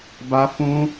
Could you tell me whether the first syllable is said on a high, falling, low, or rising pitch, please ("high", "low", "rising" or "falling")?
high